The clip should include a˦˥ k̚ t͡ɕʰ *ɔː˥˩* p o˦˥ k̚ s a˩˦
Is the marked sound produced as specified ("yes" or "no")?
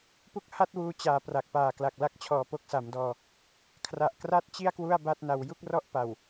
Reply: no